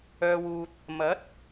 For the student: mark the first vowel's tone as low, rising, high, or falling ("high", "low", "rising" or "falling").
low